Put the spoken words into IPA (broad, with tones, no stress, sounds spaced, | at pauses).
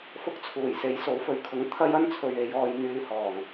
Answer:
f ʊ˥ k̚ t͡sʰ uː˨˩ j s e˨˥ j s o˨˥ w f ɵ˨˧ ɥ kʰ ʊ˨˧ ŋ t̪ʰ ɐ˥ j ɐ˥ n t͡sʰ ɵ˨ ɥ e˨˧ j ɔː˧ j n̪ yː˧ h ɔː˨˩ ŋ